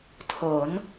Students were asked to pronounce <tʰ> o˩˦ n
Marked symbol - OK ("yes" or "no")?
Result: yes